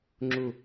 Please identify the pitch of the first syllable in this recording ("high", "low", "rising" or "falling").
low